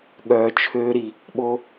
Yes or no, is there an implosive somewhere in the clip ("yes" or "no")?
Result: yes